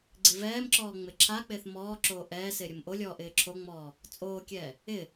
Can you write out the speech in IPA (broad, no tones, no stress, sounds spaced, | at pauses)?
ɡ͡ǀ i v ɛː m ǁ ɔː ŋ͡m ɪ ǁʰ a k͡p ɪː θ m ɔː ǁ oː ʔ ɛː s ɪː ɾʲ ʊ m ʔ o lʲ ɔː ʔ ɪː ǁʰ o ŋ͡m ɔː | t͡sʼ oː kʲ ɛː | ɪ